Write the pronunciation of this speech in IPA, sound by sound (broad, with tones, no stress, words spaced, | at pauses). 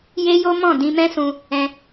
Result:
je˦jo˦mɔ̃˦˨ dĩ˧ mɛ̃˦sũ˧ | ɛ̃˧